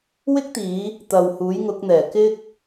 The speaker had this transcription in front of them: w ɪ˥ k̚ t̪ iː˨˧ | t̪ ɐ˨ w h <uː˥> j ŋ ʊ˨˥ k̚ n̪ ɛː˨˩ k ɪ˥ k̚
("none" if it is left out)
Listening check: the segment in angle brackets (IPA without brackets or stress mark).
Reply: uː˨˥